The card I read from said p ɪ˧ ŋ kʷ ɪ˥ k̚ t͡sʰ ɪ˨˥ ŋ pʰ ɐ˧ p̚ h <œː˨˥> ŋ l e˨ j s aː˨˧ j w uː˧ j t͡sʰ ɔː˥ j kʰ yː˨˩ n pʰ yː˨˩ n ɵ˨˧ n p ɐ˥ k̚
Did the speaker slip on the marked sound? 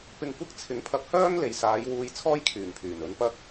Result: yes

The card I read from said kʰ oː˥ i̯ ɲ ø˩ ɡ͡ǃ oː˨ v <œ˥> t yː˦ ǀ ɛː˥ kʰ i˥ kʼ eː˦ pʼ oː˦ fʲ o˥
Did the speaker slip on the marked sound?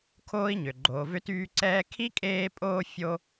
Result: yes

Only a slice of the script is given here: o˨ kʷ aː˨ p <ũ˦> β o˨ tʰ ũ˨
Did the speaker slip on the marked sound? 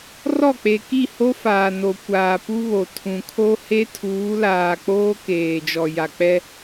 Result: yes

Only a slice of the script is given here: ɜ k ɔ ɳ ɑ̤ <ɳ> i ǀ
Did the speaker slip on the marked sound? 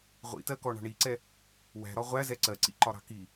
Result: no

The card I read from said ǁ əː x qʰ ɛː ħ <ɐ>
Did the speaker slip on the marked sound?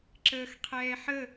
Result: yes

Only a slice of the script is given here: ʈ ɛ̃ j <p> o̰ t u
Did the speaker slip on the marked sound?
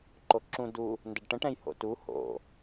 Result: yes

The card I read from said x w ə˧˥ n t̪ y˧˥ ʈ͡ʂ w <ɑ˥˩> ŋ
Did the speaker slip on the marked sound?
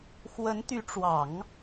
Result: yes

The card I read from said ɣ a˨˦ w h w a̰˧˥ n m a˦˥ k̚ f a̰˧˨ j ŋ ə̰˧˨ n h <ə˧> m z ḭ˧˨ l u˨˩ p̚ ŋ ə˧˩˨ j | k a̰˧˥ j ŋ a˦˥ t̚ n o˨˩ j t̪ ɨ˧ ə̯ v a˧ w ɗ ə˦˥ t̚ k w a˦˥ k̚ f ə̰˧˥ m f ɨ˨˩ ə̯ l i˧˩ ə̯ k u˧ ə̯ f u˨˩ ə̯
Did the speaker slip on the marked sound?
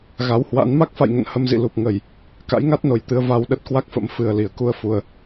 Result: no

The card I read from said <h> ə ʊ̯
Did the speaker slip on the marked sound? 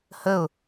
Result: no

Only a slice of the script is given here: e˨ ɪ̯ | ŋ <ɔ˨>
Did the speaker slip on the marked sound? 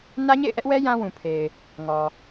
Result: no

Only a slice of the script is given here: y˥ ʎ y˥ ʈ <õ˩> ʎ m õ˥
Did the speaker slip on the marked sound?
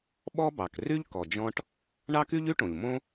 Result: no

